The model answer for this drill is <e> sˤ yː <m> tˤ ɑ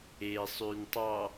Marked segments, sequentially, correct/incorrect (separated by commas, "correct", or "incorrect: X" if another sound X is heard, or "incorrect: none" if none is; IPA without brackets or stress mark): incorrect: eː, incorrect: n